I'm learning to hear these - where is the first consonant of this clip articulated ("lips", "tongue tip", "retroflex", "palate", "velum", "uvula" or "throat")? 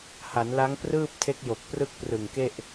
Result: throat